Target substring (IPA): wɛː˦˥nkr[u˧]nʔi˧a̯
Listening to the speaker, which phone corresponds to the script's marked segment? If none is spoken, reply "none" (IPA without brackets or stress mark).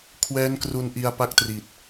u˧